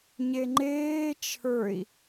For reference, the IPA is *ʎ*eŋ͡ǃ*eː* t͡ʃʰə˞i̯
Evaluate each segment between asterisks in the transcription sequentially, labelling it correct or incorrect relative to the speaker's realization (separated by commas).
incorrect, correct